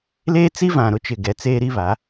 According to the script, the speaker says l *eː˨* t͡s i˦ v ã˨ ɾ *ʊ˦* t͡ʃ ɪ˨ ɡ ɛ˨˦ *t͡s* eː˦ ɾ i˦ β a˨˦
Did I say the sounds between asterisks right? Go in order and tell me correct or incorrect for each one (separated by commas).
incorrect, correct, correct